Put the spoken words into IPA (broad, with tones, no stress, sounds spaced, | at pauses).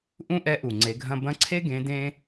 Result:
ʔ ũ˥ ʔ ɛ˧˥ ʔ u˩ ŋ͡ǀ e˩˧ ɡʱ ɐ̃˧ b ɐ̃˧˥ ǀʰ e˥ ɡ ẽ˧˥ d ẽ˥